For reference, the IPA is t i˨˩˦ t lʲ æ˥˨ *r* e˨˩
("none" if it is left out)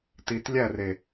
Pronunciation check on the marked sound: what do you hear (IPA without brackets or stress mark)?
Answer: r